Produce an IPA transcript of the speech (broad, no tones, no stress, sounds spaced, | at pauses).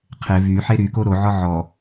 qʰ e v y ħ e ɾ y k o ɾ o ʕ ɔ ʕ ɔ